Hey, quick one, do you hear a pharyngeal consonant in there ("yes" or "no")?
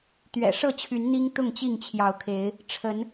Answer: no